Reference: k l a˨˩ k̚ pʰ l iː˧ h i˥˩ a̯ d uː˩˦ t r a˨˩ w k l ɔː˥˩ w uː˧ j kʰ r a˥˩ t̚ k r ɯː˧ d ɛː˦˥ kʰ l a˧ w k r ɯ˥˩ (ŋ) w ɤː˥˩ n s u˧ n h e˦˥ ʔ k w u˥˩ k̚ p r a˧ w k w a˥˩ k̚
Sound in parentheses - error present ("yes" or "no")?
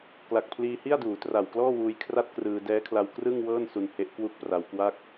no